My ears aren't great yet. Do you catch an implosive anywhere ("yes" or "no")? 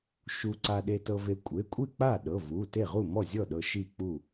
yes